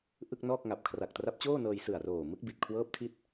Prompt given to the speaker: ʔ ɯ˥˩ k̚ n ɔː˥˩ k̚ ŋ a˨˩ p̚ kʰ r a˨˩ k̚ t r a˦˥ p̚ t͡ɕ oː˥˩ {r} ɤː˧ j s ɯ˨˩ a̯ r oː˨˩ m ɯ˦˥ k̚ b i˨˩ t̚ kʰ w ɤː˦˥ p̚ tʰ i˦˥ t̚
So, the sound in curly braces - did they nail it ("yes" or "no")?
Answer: no